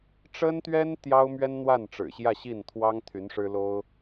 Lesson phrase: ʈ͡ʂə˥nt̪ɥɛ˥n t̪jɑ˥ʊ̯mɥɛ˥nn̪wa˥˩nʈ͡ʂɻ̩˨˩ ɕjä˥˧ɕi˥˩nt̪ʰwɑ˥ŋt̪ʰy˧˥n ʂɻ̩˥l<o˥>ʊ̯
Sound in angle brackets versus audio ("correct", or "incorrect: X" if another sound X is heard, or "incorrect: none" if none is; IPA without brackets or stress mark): correct